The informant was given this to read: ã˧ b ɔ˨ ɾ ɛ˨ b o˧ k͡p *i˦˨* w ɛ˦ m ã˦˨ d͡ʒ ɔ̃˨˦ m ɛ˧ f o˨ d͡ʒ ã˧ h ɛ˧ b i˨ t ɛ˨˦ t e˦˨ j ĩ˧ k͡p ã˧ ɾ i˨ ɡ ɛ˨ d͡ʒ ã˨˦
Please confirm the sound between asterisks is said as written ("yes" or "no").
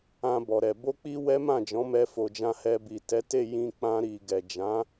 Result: no